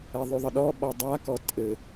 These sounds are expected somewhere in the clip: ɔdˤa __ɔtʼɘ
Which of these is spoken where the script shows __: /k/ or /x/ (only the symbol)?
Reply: k